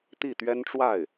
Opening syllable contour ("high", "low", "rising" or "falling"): falling